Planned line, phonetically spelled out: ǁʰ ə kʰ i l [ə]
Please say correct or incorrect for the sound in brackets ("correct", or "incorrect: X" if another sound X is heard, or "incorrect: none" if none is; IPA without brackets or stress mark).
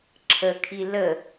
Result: correct